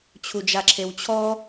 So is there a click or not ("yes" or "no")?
yes